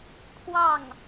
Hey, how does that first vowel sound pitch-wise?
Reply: falling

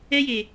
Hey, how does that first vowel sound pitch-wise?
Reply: high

